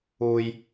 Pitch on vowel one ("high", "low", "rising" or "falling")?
low